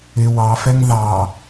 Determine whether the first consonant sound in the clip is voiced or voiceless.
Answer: voiced